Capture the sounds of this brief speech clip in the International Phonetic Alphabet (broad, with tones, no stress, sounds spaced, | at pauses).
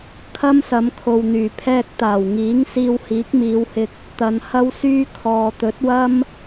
kʰ ɐ˥ m s ɐ˨˧ m kʰ o˨ w n̪ yː˨˩ pʰ ɛː˧ k̚ t̪ aː˨˩ w ŋ iː˨˥ ŋ s iː˧ w h iː˨˥ k̚ m iː˨˧ w h ɪ˧ k̚ | t̪ ɐ˨ n h ɐ˥ w s yː˥ kʰ ɔː˨ t̪ ɵ˨˥ t̚ w ɐ˥ m